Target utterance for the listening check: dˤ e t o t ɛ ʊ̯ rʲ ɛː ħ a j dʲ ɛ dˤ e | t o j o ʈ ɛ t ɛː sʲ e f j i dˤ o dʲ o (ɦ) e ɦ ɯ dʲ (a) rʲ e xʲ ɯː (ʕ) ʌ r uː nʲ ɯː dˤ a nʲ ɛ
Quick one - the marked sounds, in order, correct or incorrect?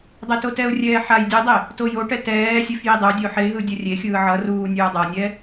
incorrect, incorrect, correct

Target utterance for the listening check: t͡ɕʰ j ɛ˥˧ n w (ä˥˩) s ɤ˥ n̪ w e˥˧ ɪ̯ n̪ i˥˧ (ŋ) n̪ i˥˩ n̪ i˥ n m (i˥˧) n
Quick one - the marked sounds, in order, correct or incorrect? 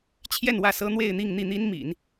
correct, correct, incorrect

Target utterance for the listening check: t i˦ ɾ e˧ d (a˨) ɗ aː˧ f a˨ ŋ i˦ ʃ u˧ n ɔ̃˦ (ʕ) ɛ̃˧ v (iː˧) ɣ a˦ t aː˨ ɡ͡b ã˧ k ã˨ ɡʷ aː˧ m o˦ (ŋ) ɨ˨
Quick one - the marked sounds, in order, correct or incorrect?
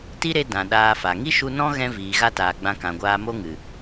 incorrect, incorrect, incorrect, correct

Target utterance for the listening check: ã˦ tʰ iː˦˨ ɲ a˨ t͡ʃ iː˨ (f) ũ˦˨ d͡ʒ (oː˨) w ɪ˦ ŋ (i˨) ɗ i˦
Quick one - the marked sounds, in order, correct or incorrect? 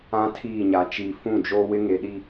correct, incorrect, incorrect

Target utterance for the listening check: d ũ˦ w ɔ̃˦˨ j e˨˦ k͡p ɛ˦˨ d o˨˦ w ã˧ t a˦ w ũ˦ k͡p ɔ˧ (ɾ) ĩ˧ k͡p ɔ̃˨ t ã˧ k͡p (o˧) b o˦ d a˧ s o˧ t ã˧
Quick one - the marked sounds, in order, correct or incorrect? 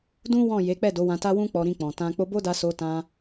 correct, correct

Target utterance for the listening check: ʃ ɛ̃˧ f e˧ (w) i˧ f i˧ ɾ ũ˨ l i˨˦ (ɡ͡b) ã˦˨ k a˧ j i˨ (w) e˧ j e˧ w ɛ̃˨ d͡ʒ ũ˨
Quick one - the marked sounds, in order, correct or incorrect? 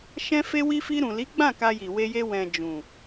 correct, correct, correct

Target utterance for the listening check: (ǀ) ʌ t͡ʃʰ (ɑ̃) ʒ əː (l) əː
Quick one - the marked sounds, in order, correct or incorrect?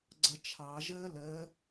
incorrect, incorrect, correct

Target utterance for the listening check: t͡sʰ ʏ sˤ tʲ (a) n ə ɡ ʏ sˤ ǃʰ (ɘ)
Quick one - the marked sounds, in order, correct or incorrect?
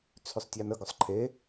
correct, incorrect

